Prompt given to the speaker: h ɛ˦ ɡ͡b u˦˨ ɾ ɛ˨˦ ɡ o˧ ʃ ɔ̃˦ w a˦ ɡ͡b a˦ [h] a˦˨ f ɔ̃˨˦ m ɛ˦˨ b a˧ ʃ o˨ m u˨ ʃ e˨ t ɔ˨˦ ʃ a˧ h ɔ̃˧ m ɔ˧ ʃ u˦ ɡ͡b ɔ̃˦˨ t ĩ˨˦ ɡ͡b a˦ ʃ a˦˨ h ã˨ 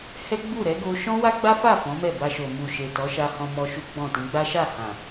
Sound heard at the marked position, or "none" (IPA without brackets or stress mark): f